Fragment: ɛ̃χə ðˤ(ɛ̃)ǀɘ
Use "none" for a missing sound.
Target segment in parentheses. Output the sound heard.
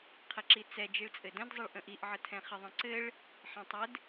ə̃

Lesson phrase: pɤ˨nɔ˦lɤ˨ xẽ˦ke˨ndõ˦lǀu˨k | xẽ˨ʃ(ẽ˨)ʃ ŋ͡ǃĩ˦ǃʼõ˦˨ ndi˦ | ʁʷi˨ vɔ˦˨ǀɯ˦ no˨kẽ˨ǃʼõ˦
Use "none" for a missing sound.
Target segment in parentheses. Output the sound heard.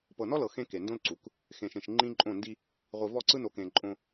ẽ˨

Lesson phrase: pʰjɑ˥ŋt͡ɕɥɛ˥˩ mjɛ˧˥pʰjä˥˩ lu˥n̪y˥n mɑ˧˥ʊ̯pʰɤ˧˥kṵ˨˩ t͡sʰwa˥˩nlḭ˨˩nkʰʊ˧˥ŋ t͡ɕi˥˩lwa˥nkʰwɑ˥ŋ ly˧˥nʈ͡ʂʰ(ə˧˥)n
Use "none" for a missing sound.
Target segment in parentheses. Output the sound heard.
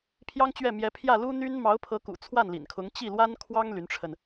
ə˧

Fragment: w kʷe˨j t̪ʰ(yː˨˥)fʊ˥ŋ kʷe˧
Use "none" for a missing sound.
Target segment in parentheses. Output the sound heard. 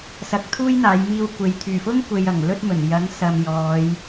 yː˨˩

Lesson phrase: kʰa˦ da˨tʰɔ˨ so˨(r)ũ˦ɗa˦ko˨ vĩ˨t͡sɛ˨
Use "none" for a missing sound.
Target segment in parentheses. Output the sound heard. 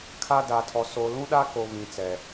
l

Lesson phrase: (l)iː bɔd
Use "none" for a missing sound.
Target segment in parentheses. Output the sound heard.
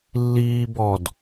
lː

